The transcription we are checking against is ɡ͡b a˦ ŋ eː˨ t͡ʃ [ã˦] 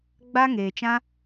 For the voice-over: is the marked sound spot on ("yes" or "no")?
yes